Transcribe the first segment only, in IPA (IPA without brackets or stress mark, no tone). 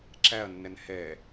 ǁ